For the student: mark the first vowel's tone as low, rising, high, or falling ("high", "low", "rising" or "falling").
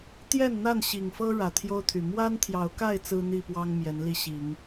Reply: falling